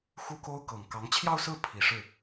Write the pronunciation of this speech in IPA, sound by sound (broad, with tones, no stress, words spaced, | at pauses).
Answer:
xu˥ko˥ʊ̯ kɤ˨˩ŋkɑ˧˥ŋ t͡ɕʰjɑ˥˧ʊ̯sɹ̩˥˩ pʰi˨˩ʂɻ̩˥˩